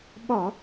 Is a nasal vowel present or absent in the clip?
absent